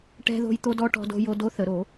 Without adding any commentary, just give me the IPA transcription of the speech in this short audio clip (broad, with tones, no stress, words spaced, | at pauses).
ʈɛ̤˧ ðo̤˧jt̪o˧dɔ˧ ʈɔ̤˧do̤˧ jo˧do˧˥θə˧˩˧ ɾo˧˩˧